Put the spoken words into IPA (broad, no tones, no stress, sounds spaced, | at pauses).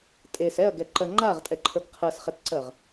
tʼ e s ɛ ɐ̯ ɡ ɛ ǃ ɜ ŋ͡ǃ a ʁ tʼ ɛ ǃʰ ə˞ ɡ qʰ ɜ s χ ɛ t ǀ ɜ ʁ